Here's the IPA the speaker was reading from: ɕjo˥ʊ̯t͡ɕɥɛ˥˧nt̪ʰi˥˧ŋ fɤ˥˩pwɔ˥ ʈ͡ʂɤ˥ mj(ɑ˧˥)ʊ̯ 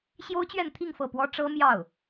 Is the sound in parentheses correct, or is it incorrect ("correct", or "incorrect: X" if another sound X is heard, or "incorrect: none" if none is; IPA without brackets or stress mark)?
incorrect: ɑ˥˩